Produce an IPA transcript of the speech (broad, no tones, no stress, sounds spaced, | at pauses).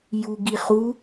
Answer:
j u ɡ i χ u